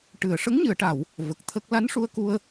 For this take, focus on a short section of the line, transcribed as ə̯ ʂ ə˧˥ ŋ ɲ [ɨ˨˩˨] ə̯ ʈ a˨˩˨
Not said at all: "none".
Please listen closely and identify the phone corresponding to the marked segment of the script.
ɨ˨˩˨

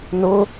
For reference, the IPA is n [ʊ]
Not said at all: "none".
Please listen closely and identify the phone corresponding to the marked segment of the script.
ʊ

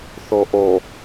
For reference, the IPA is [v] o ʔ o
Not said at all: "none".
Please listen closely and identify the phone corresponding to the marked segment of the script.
θ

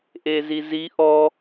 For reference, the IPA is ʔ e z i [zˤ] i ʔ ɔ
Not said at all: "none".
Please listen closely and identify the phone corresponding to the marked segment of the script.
z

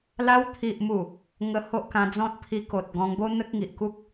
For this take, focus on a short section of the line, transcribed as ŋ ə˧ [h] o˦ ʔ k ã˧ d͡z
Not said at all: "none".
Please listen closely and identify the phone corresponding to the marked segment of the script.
h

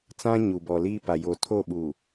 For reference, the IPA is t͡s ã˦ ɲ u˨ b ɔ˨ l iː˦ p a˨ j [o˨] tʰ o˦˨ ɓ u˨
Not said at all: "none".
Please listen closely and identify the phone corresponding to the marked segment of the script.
o˨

